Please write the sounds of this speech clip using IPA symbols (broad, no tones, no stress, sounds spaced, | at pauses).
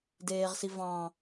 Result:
d eː ʁ s i v ɑ̃